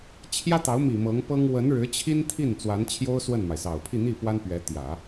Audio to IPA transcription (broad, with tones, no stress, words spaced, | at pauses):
t͡ɕʰjä˥t̪ɑ˧˥ʊ̯mi˨˩ mɤ˧˥ŋpɤ˥ŋ wə˧˥nɻɻ̩˧˥t͡ɕʰi˥n t̪ʰi˥˩n t͡swa˧˥nt͡ɕʰjo˥ʊ̯ swə˥˩nma˩ɪ̯sɑ˨˩ʊ̯ pʰi˥˧n̪i˥˩pwa˥npɥɛ˧˥ t̪jä˨˩˦